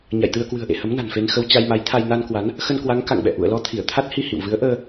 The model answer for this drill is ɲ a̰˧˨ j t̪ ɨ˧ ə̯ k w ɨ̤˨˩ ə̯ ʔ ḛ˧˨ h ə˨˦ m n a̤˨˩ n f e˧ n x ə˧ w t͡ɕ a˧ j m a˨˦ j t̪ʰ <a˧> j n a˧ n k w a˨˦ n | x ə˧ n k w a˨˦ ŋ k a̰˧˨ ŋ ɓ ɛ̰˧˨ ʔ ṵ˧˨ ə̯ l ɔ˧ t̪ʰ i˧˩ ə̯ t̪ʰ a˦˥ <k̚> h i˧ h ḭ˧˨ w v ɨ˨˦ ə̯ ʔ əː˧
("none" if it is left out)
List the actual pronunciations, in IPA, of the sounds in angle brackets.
a˧, t̚

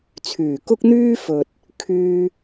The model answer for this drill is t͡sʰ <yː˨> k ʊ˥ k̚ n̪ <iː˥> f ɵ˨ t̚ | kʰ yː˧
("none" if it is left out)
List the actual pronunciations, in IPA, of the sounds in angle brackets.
yː˨˩, yː˥

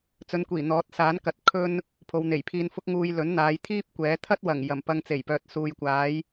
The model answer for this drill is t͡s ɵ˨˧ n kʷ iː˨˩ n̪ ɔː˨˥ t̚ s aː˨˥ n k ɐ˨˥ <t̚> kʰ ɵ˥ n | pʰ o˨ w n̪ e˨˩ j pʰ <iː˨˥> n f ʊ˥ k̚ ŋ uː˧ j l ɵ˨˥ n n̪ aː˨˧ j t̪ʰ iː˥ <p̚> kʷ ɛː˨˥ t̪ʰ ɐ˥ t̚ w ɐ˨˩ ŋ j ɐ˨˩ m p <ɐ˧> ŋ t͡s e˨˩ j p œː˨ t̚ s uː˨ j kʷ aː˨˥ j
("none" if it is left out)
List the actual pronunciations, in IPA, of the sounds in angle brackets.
t̚, iː˧, p̚, ɐ˧

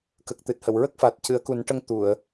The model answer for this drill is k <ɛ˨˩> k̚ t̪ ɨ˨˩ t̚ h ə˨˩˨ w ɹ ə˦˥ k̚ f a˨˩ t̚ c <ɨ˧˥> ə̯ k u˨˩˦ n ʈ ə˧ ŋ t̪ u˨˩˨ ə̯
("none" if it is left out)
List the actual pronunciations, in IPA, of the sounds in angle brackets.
ə˨˩, ɨ˨˩˦

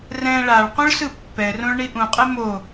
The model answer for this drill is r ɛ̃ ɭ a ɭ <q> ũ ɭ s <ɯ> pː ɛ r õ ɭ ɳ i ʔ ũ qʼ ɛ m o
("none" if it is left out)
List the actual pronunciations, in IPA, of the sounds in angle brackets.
q, ɯ

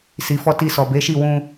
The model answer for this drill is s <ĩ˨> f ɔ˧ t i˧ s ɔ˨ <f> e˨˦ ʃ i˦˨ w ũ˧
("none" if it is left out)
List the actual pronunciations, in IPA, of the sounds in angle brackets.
i˨, b

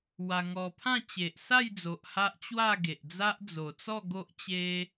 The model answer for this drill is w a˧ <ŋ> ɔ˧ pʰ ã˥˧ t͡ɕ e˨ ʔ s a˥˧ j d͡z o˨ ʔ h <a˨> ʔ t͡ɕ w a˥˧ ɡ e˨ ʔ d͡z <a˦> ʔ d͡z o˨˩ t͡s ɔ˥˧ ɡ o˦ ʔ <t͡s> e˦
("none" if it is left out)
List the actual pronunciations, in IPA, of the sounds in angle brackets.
ŋ, a˦, a˦, t͡ɕ

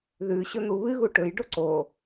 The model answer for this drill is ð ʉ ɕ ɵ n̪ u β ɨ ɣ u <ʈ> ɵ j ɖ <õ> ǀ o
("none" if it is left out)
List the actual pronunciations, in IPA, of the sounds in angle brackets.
ʈ, o

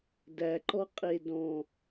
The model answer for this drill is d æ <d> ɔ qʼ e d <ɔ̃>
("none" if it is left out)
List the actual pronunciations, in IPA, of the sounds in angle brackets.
ǃ, ɔ̃

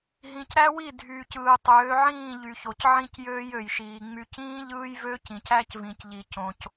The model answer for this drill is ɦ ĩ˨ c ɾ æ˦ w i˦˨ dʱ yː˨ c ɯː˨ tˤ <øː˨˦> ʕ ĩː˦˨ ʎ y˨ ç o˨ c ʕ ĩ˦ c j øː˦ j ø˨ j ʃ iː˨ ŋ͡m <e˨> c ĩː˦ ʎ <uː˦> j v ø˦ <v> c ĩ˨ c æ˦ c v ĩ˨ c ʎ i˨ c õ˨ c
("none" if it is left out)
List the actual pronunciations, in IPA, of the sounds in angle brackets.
øː˨˦, y˨, ɯː˦, none

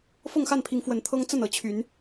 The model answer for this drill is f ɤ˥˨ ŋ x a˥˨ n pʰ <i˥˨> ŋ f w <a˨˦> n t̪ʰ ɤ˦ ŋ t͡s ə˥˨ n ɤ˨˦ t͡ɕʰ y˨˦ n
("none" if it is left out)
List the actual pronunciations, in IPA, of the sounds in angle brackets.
i˨˦, ə˨˦

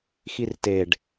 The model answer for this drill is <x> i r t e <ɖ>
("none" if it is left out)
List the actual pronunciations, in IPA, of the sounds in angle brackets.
x, ɖ

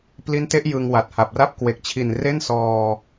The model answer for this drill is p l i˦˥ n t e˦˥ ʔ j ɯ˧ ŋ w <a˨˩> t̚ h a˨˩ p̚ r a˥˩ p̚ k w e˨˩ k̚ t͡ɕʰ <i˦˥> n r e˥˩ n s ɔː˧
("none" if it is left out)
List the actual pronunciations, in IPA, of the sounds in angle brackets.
a˨˩, i˨˩

